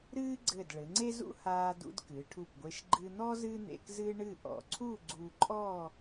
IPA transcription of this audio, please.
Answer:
ɾ ɨː˥ ɡ͡ǀ ɘ˧˩ d ɭ ɘ˩˧ ŋ͡ǀ e˥ z ṵ˥ h aː˧ d ṵ˧ d k ɨ˩˧ ʈʰ u˧˩ p ɡʷ e˧ ʃ ɡ͡ǃ ɨ˧ n̪ ɔ˥ z ɨ˥ n̪ ḛ˧ k z ɨ˥ ɳ ɨ˥˧ ʔ ɔ̰˧˩ ǀʰ u˥˧ ɡ͡ǀ u˧ ǃʼ ɔ˥˧

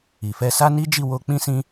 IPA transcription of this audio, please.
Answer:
i˨ f ɛ˧ s a˦ n i˦ d͡ʒ i˦˨ w o˧ k͡p ĩ˦ s ĩ˦

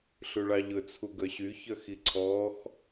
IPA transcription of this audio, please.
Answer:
ɬ ʉ ɭ ɑ ʎ ɵ t͡sʰ u ɡ œ ɕ y ç œ x i ǀʰ ɔː x

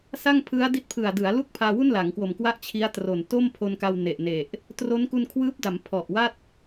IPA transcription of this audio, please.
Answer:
s a˥˩ ŋ pʰ ɯ˦˥ a̯ d i˦˥ t̚ pʰ ɯ˨˩ a̯ d ɯ˩˦ a̯ l u˥˩ k̚ pʰ aː˧ w u˥˩ n l a˩˦ ŋ k w o˨˩ m k w a˥˩ ʔ t͡ɕʰ i˦˥ a̯ t r o˨˩ n t o˥˩ m pʰ o˧ n k a˧ w n e˨˩ ʔ n e˨˩ ʔ | t r o˦˥ n k u˧ n kʰ w ɯː˦˥ p̚ d a˩˦ m pʰ ɔ˨˩ ʔ w a˥˩ t̚

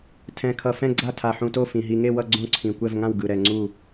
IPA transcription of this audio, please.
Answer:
tʰ ɛ̃˨˩ kʰ ʌ˨˩ f ɛ̃˥˨ ɡ͡ǀ a˥˨ tʰ a˨˩ ħ ũ˨˩ t o˥˨ f ĩ˨˩ ɦ i˨˩ ŋ e˥˨ w ʌ˥˨ ɡ͡ǀ õ˥˨ ǀʰ ĩ˨˩ kʷ ɛ˥˨ v ŋ ã˥˨ w ɡ ɯ˨˩ ɾ ɛ˨˩ ŋ͡ǀ u˥˨

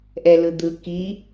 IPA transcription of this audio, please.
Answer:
ʔ ɛ l ɯ d̪ ɯ k i

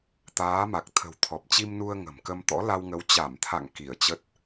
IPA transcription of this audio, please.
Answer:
t̪ aː˨˦ m a˨˩ k̚ t̪ʰ ə̤˨˩ w t̪ʰ ɔ˨˩ p̚ t͡ɕ i˧ m n u˧ ə̯ ŋ ə̤˨˩ m k ə˧ m t̪ ɔ̰˧˥ l a˧ w ŋ ə˨˦ w t͡ɕ a˧˩ m t̪ʰ a̰˧˨ ŋ k i˧˩ ə̯ t͡ɕ ə˦˥ t̚

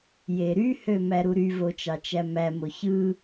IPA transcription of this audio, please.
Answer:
j e ɾ y h ø m æ ɾ u ɾ y v o t͡ʃ ɑ t͡ʃ æ m æ m o ç ɯ

